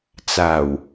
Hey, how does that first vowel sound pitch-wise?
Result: low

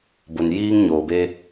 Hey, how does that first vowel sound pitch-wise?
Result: low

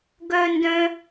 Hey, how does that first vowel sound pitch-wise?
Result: high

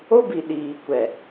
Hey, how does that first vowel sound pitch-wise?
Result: high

